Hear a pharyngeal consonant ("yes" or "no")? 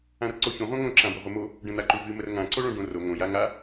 no